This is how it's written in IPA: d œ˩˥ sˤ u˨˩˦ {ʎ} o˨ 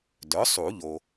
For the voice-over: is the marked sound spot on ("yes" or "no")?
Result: yes